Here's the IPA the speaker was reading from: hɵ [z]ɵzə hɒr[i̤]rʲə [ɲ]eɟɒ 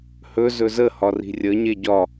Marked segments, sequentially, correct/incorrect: correct, correct, correct

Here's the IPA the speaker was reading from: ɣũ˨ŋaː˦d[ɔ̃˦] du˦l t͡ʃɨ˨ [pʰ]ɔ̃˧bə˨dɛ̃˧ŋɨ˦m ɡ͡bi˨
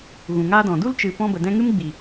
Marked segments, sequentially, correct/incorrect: incorrect, incorrect

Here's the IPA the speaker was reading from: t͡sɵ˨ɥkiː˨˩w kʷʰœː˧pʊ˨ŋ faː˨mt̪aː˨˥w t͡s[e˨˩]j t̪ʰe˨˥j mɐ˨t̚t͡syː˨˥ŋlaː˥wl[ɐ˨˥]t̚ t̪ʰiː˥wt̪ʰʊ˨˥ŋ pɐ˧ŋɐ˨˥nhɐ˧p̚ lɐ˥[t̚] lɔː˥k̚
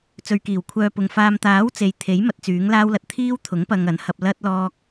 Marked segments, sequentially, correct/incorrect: incorrect, incorrect, correct

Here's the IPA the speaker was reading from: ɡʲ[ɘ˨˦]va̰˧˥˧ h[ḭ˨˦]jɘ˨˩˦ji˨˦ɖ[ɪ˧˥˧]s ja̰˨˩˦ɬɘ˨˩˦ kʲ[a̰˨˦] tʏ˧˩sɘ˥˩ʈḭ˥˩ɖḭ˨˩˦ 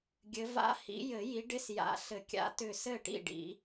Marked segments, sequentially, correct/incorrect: correct, correct, correct, correct

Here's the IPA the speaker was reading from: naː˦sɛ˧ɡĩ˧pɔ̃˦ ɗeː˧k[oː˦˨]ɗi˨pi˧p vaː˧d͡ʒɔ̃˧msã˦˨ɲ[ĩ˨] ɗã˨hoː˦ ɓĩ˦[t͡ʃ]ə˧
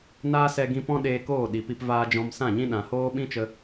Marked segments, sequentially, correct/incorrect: correct, incorrect, correct

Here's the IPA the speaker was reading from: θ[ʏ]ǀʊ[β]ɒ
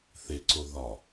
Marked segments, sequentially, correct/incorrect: incorrect, incorrect

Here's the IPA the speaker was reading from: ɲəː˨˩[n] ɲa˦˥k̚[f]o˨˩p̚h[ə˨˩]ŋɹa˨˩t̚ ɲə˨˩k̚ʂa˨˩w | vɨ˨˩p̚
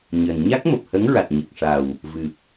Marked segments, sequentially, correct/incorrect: correct, incorrect, incorrect

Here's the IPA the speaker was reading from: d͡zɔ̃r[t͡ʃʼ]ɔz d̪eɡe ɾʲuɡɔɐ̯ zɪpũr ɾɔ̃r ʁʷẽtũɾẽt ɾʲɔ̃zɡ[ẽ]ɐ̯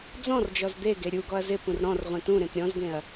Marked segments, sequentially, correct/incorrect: incorrect, correct

